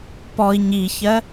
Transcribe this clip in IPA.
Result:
p ɔ i̯ ɲ i ç ɜ

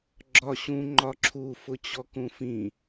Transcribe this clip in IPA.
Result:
ɡ͡ǁ ɒ ɕ ũ ŋ͡ǃ ɒ ǁʰ u f ʊ t͡ɕ ɔ k ũ f ĩ

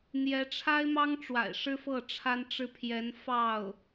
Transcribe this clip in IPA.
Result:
n̪ j ɛ˧˥ ʈ͡ʂʰ a˥ ɪ̯ m ɑ˥ ŋ ʈ͡ʂ w a̰˨˩ ɪ̯ ʂ ɻ̩˥ f ɤ˥˩ ʈ͡ʂʰ a˥ n ʈ͡ʂ ɻ̩˥˩ pʰ j ɛ˧˥ n f ɑ˥˩ ʊ̯

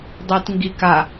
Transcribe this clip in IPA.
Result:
dˤ i t ŋ ɡ i k a

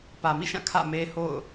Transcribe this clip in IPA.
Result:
p ä˨ m ḭ˦˨ ʃ ã˦˨ kʰ ä̰˦˨ m e˦ h o̰˦˨ ʊ̯

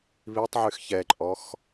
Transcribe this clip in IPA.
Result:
β i tˤ ʕ y x ç ɛ ǃʼ ɔ x

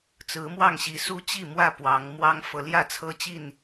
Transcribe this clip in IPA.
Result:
t͡s ɹ̩˨˦ m w ɑ˥˨ ŋ ɕ i˨˦ s u˦ t͡ɕ i˥˨ m w ä˥˨ p w ɑ˨˦ ŋ m w ɑ˦ ŋ f ɤ˨˦ l j ä˥˨ t͡sʰ ɤ˦ t͡ɕ i˥˨ n

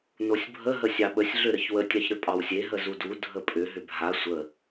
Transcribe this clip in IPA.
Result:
n o sʲ bʱ ə ɦ ə sʲ ɑ ɓ ə sʲ ɮ ʏ ɾ ə ç w ə tʲ ɑ ç ɾ ʏ pʼ ɑ w sʲ e ɦ ə z u d u dʱ ə pʼ ʏ ɦ ʏ bʱ a sʷ ə

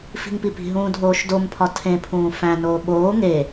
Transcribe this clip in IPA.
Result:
f i̤ ŋ p i p i̤ ɦ ũː dʱ oː ʃ d o m pʰ ɒ tʰ ẽ pʰ ũː f æ̃ n oː ɓ oː ŋ e

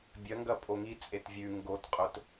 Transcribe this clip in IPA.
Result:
bʲ ɐ ŋ ɡ ɐ pʼ o ŋ i t͡sʼ e t vʲ ʉ ŋ ɡ o t qʼ ɵ t

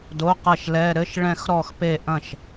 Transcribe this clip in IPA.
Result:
d o˧˥˧ q ɐ˥˩ ʃ l ɛ˧˥˧ ɾ ɘ˧˥˧ ʃ ɭ ɛ̃˥˧ x ɾ ɔ˥˧ x p e˥˩ ʔ ɐ̃˥˩ ʃ

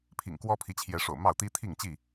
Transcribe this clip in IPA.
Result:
pʰ ḭ˨˩ ŋ k w ɔ˦ pʰ i˨˦ t͡ɕʰ j ɛ˨˦ ʂ o̰˨˩ ʊ̯ m ɑ˥˨ ʊ̯ t̪ i˦ t̪ʰ i˥˨ ŋ t͡ɕ i˥˨

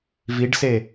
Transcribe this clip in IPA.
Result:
v i ɖ s e

